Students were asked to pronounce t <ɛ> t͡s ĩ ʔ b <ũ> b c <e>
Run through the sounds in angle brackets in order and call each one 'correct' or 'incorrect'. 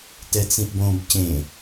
correct, incorrect, incorrect

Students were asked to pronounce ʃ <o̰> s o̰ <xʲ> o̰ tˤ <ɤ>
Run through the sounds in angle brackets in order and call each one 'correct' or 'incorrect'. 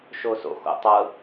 incorrect, incorrect, correct

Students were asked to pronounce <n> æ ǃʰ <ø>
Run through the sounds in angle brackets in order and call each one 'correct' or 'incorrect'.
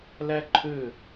incorrect, correct

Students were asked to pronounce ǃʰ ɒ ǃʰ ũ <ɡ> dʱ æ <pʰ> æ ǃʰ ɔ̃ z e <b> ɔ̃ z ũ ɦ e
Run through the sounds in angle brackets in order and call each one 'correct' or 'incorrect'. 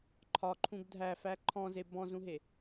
correct, incorrect, correct

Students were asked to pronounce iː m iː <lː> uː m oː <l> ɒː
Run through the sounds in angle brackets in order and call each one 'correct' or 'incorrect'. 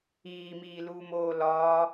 incorrect, correct

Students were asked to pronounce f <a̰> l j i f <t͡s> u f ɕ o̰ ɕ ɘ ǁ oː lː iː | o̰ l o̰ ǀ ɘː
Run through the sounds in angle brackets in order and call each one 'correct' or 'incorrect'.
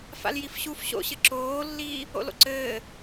correct, incorrect

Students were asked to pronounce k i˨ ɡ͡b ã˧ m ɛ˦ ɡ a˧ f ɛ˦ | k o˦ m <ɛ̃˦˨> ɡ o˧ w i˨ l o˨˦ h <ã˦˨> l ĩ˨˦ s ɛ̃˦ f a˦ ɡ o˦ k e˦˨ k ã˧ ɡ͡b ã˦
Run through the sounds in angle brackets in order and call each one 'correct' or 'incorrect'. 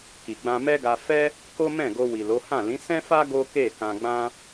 correct, correct

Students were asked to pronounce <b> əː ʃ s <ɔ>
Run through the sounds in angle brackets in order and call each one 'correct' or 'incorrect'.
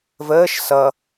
incorrect, incorrect

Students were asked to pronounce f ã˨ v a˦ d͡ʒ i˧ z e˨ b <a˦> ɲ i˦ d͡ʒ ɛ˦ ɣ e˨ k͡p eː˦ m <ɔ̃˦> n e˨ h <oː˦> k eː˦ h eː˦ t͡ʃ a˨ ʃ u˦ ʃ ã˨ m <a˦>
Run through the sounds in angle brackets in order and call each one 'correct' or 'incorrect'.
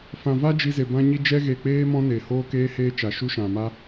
incorrect, correct, correct, correct

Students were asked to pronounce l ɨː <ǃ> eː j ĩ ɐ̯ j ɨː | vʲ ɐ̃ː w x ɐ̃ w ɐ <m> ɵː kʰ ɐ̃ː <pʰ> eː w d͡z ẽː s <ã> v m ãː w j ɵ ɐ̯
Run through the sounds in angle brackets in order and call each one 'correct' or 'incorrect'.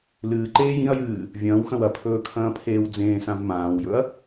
correct, incorrect, correct, correct

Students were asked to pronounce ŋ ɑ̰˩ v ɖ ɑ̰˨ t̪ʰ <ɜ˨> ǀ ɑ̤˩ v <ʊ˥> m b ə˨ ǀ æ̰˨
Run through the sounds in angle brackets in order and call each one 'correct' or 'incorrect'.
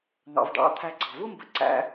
incorrect, correct

